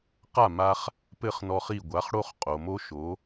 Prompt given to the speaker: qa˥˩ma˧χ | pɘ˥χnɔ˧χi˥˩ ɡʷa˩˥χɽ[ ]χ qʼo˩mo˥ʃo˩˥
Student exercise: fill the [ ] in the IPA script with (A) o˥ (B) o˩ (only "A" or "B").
A